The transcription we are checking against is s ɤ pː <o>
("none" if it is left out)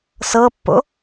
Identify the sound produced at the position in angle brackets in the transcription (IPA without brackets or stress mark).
o̰